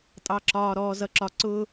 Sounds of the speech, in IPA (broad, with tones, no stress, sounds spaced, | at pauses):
tʼ ɑ˨ ǁ ɒː˨ ɾ ɔː˨ z ʌ˨ ǁ ɒ˨ ǀ ʊː˦